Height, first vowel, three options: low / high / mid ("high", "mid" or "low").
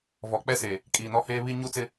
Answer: mid